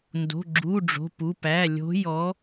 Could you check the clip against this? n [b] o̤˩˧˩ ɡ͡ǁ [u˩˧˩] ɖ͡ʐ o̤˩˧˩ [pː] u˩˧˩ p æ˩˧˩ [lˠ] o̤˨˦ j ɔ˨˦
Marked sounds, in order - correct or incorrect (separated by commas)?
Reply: incorrect, correct, incorrect, incorrect